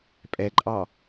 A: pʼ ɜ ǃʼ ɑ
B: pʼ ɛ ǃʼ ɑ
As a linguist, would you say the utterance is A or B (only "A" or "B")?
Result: B